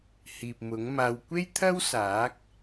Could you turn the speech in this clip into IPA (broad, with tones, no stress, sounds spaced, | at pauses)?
h iː˨ p̚ m ʊ˨˥ ŋ m aː˧ w kʷ e˥ j t̪ʰ ɐ˥ w s aː˨˥ k̚